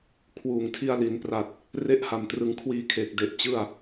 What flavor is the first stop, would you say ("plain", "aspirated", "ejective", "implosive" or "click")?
aspirated